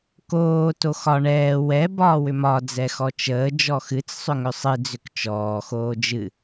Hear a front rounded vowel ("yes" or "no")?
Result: yes